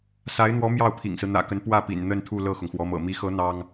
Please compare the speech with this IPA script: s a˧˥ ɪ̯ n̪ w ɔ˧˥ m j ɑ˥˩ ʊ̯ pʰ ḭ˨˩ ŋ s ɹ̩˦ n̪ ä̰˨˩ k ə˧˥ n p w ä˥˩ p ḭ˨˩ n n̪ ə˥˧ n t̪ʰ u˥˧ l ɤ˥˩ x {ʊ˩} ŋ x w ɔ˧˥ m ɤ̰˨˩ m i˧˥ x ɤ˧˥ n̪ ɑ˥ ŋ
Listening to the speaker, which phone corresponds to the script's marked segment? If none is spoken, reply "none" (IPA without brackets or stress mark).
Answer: ʊ˩